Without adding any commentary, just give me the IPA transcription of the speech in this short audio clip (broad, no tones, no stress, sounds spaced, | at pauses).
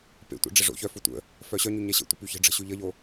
p ḛ tʷ ḛ ɖ͡ʐ ə ʐ o̰ ç œ f o tʷ ə̰ | f œ ɕ œ ɲ y ɲ ɛ ɕ ə̰ tʷ ə̰ p y ç ə̤ ɖ͡ʐ ə̤ ɕ y ʎ ə ʎ o